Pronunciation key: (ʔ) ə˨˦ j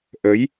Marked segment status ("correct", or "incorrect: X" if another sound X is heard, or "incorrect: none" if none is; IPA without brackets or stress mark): correct